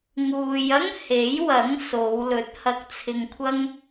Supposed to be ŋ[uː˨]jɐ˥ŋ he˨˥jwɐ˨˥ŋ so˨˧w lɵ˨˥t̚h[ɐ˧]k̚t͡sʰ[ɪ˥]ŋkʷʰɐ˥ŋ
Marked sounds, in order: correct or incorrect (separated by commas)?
correct, correct, incorrect